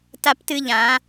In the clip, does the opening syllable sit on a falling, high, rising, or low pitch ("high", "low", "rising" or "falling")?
high